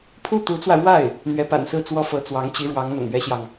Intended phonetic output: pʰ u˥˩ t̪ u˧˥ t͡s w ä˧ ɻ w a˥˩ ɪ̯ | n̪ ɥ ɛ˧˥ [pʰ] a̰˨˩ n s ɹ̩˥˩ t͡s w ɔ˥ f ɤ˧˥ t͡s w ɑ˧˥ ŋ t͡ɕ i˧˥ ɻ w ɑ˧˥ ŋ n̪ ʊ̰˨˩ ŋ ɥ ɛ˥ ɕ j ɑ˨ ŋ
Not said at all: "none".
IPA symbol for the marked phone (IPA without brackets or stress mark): p